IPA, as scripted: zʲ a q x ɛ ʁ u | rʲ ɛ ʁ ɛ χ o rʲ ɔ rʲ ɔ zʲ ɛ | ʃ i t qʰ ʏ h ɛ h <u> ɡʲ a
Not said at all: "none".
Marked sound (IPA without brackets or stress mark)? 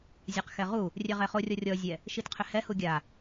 u